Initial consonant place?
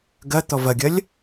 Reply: velar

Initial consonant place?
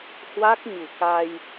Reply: glottal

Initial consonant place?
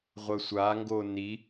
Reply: uvular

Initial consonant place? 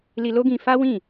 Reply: alveolar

